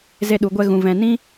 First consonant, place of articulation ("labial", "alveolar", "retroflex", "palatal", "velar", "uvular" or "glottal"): alveolar